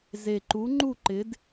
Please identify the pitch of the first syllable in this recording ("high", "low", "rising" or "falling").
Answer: low